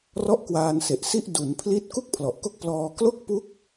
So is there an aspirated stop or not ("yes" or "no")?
yes